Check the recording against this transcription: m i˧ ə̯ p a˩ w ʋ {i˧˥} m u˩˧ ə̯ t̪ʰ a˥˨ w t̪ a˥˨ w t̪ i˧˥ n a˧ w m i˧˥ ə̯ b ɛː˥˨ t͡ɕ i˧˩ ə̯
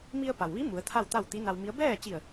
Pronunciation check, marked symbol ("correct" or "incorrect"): correct